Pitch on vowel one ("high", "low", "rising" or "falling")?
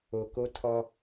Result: low